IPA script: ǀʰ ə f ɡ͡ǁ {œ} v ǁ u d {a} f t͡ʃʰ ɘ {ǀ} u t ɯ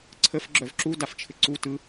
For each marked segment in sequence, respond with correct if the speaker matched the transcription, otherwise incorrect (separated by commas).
correct, correct, correct